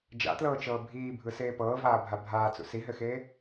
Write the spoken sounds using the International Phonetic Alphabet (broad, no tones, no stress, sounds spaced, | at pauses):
d͡ʒ a̰ t l ɤː t͡ʃ ɤː bʱ iː bʱ ɯ s eː p ɤː v aː bʱ a bʱ aː t͡s ṵ s i ɦ ɘ x eː